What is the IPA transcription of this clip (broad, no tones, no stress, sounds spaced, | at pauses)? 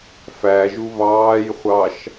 f æ ʒ u β ɑː j χʷ ɑ ʃ